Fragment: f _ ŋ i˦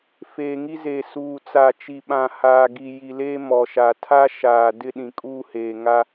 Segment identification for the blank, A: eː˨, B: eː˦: A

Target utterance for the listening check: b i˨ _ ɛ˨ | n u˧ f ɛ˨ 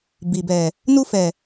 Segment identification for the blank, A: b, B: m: A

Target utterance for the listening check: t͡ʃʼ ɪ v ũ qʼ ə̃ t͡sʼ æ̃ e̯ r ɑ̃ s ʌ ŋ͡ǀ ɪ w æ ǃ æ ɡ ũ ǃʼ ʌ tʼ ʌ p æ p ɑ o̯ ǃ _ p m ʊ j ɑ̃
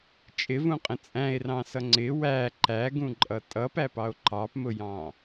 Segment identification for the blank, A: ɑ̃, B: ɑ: B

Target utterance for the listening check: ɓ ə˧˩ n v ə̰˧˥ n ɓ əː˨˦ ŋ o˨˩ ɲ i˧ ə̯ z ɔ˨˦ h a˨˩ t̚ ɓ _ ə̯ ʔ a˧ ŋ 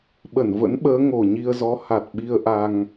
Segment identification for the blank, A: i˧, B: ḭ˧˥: A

